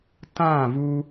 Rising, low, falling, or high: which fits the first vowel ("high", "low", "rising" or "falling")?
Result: falling